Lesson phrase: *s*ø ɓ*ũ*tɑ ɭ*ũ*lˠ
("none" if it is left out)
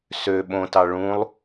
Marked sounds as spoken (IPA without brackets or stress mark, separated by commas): s, õ, ũ